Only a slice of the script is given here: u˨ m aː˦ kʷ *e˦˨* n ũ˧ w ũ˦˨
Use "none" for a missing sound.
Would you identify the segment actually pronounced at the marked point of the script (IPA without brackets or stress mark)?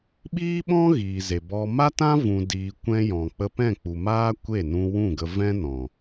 e˦˨